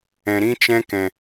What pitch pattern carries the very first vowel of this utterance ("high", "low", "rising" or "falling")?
low